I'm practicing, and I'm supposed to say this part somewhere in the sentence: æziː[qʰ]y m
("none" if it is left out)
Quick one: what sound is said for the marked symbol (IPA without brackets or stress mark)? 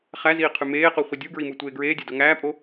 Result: qʰ